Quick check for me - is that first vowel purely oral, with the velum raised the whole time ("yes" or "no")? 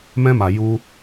no